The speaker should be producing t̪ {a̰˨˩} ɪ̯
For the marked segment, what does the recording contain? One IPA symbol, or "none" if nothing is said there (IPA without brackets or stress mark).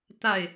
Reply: a˥˨